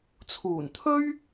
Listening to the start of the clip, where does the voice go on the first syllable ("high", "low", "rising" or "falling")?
low